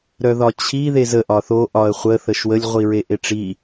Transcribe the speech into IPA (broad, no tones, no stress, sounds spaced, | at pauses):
ɾ œ ð ɒ t͡ɕʰ i ð e z ə ʔ ɒ θ o ʔ ɒ ə̯ χʷ ə θ ə ʃ w ə lʲ ʁʷ i ɹ e ʔ e ʈ͡ʂ i